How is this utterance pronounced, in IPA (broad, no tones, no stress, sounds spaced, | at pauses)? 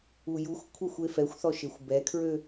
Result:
u j u xʷ kʷʰ œ xʷ e f ɛ xʷ θ ɔ ʃ e xʷ b ɛ kʰ ɹ ø